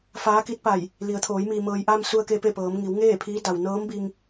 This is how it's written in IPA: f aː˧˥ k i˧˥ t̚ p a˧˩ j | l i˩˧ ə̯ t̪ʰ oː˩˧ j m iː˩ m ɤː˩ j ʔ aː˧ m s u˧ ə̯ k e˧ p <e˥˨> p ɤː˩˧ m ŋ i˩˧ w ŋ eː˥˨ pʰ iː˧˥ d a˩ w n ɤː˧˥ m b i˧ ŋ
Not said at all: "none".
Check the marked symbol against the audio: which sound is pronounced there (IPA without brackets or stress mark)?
e˥˨